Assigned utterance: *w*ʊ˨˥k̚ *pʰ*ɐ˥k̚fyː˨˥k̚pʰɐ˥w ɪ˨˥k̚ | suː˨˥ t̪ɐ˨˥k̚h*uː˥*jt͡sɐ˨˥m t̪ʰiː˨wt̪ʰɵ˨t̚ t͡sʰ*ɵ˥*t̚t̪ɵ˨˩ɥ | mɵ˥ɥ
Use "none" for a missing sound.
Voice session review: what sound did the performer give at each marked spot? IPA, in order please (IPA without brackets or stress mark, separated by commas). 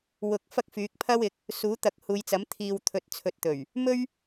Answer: w, f, uː˨˧, ɵ˨